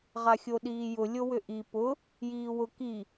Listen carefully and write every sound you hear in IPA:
ʁ a xʲ o ɗ iː j ʊ lʲ o w ʏ ʔ i p ʊ | j iː w ʊ k i

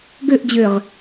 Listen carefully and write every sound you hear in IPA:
ɡ ø ʔ d͡ʑ ø ʁ

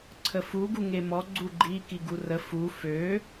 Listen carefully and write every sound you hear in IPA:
ǀʰ ə f u ɡ u ŋ e m ɔ ɡ͡ǀ u ɡ͡ǃ i k i ɡ u r ə f u f ø

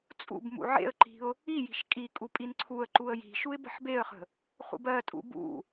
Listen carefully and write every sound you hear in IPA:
t͡sʼ ṵ b m ṵ ʕ ḛ ə̯ ǃ i̤ ʊ̯ | i j i̤ ʃ kʼ i kʼ u pʼ i n ǀʰ u ə̯ ǃ u ə̯ j i̤ ʃ u ɪ̯ b ə̤ ħ b e ə̯ χ ə̤ | χ ṵ b ɜ tʼ ṵ b ṵ

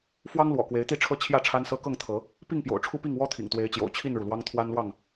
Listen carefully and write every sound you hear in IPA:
f w ɑ˦ ŋ l w ɔ̰˨˩ k w e˨˦ ɪ̯ t̪ i˥˨ ʈ͡ʂʰ ɤ˦ t͡ɕʰ j ä˥˨ ʈ͡ʂʰ a˦ n s ɤ˦ k ɤ˥˨ ŋ t̪ʰ ɤ˨˦ | p i˥˨ ŋ p j o̰˨˩ ʊ̯ ʈ͡ʂʰ u˦ p i˥˨ ŋ w ɔ˦ t̪ʰ ḭ˨˩ ŋ t̪ w e˨˦ ɪ̯ t͡ɕ j o̰˨˩ ʊ̯ t͡ɕʰ i˥˨ n ɻ u˩ l w ɑ˦ ŋ t̪ʰ w a˦ n l w ɑ˥˨ ŋ

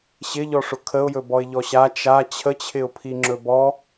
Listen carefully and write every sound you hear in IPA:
ɕ ɪ ʎ ɔ ʂ ʊ kʰ ə ʊ̯ j ɵ b ɔ ɪ̯ ʎ ɔ ɕ a t͡ʃ a t͡ɕʰ ə t͡ɕʰ ɪ ʊ̯ pʰ i ŋ͡ǁ ɵ b ɔ

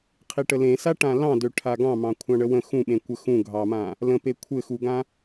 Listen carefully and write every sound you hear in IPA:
qʰ i ʈ ə l ẽ s a ʈ ã l ɑ̃ d ø ʈʰ a ɡ ɑ̃ m ɑ̃ kʷʰ ɑ̃ ɳ ə w ə̃ x ũ ɓ ẽ kʷ ə x ũ ɡʱ ɑ m ã | l ə̃ p e kʷʰ ɘ x u ɡ ã

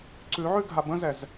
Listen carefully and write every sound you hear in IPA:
ǀ ʉ ʕ ʉ ɡʱ a b ə̃ z ɛ z

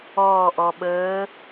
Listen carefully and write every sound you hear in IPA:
ɔː˧˩ ʔ ɔ˩ ɓ əː˨˥

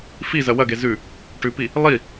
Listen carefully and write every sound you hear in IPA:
f i z ɐ w ɐ ɡ e z ʉ | ʈ ʉ p i | lˠ i

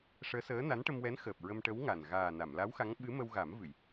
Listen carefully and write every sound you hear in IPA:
ʂ əː˧˥ s əː˧˥ n a˧˥ n ʈ ə˧ m w ɛ˧˥ n x əː˨˩ p̚ ɹ ə˧ m ʈ ə˧˥ w ŋ a˨˩ n ɣ aː˨˩ n a˨˩˨ m l a˧˥ w x a˧˥ ŋ ɓ ɨ˧˥ m ə˧ w ɣ a˨˩˦ m v ɨ˨˩˨ j

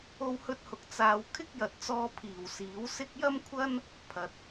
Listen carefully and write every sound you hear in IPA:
o˥ w h ɵ˥ t̚ h ʊ˧ k̚ t͡s aː˨ w kʰ ɪ˥ k̚ j ɐ˨ t̚ t͡s ɔː˧ pʰ iː˨˩ w s iː˨˥ w s ɪ˥ k̚ j ɐ˥ m kʷʰ ɐ˥ n | pʰ ɐ˨ t̚

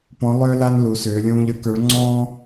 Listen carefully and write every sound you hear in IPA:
p ɔ̃˧˥ lˠ ʏː˥ l a˥ n l u˧˥ s ʏː˧˥ lʲ ũː˥ ʎ ə˞˧˥ k ə˞˧˥ ɭ ŋ͡ǀ ɔ̃ː˥

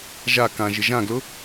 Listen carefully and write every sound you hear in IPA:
ʒ a k ã ʒ ɪ ʒ ã ɡ l ʊ

